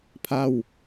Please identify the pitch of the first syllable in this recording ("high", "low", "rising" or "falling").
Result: falling